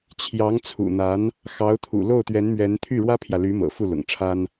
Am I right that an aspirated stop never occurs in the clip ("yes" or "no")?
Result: no